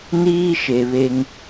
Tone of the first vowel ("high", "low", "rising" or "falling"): high